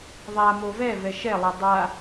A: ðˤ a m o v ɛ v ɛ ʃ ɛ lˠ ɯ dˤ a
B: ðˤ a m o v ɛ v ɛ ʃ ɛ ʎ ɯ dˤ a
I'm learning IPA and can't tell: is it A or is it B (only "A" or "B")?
A